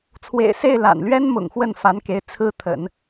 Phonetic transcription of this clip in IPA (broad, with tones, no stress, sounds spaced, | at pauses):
t͡sʰ w ḛ˨˩ ɪ̯ s e˥˩ ɪ̯ l a̰˨˩ n l ɥ ɛ˥ n m ʊ̰˨˩ ŋ x w ə˥˩ n f a˧˥ n k e˧˥ ɪ̯ t͡sʰ ɹ̩˥ t̪ʰ ə̰˨˩˦ n